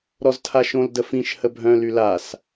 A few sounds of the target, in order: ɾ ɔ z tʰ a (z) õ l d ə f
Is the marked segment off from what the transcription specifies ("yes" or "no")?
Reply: yes